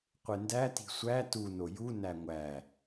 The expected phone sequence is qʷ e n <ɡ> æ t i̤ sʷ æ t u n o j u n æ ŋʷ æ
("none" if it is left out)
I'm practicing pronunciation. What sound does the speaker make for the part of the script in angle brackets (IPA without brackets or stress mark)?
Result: d